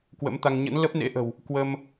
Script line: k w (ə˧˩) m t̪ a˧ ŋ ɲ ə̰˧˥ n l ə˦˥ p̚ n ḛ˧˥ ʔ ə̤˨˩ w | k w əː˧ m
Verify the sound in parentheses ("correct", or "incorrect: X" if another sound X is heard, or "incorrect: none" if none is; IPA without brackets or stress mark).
incorrect: ə̰˧˥